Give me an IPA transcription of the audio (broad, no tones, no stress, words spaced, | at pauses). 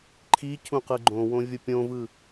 ǃʰi cʰũqɯɡ͡ǃõwõ vʲʊpʲõvɯ